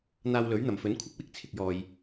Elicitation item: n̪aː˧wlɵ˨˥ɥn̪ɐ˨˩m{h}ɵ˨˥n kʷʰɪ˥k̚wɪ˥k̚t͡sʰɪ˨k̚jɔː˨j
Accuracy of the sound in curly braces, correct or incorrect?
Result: incorrect